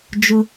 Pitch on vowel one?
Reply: high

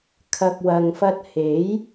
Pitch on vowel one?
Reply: low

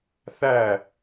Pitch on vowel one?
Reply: falling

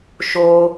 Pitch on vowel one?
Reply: high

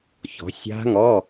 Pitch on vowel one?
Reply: rising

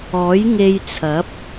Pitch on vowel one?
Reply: rising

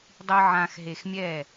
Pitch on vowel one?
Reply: low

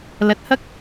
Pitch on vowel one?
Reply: low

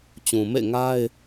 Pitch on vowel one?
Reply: low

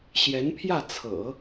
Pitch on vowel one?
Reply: rising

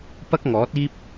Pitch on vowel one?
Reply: high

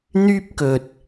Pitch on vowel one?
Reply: high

